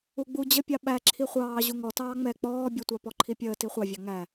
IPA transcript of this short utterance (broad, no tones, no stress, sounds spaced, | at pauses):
u ɡ͡b u d͡ʑ ə pʲ ɑ ɓ æ ǁʰ i χʷ ɑː ʑ u ŋ ɔ t ɑː ŋ͡m ɛ k͡p ɔː bʲ ʊ tʷ ɑ p ɔ ǃʰ i pʲ əː t i χʷ ɑ vʲ ɑ ŋ æ